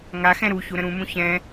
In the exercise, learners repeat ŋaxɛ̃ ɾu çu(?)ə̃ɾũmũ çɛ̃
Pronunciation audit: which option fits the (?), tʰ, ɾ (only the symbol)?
ɾ